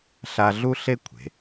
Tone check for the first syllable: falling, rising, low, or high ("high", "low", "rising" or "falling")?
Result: high